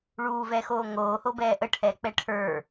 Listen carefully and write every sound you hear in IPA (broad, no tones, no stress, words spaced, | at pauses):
ɭuːvɛxoː ŋoːhobɛː ʔəʈʰɛːk͡pɛ ʈʰə˞